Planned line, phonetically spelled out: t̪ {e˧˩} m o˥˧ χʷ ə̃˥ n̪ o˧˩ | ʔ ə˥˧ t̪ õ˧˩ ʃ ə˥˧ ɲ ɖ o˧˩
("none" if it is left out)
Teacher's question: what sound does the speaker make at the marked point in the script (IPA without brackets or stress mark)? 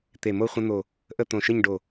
e˧˩